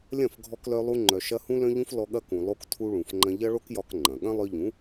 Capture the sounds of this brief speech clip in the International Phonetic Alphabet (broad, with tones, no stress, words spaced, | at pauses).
lʲɐ̃˦˨fɡʱɔ˧klœ˧lˠu˧ ŋ͡ǃœ˨ʃɐ˧ hũ˧lœ̃˧ʎũ˧f lɔ˧ɠɐ˦kũ˨ lˠo˦ktʰu˦ɭũ˨fŋ͡ǃɐ̃˦ ʎɐ˦ɭo˦kjɒ˧k ŋ͡ǃɐ̃˨ ɠɐ̃˦lˠœ˧ʎũ˨˦